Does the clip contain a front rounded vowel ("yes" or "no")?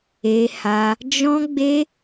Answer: no